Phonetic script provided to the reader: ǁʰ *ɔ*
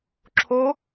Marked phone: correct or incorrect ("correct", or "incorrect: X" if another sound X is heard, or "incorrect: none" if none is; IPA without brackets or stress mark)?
incorrect: o